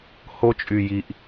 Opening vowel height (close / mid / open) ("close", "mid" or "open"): mid